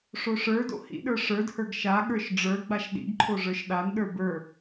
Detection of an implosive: present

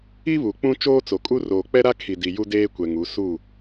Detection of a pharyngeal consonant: absent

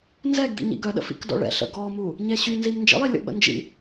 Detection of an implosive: present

